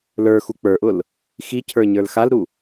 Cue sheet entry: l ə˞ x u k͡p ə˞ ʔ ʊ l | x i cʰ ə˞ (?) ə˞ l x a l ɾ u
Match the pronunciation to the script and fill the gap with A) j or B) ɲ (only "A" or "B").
B